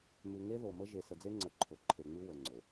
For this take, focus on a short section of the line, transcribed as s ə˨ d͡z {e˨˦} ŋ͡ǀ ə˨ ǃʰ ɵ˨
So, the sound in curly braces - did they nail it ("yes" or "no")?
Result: no